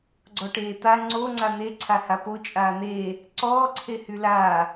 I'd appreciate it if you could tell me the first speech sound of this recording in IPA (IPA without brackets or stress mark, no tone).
ɡ͡ǀ